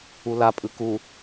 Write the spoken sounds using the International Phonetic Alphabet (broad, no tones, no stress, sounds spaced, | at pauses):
u l a pʼ ɯ k u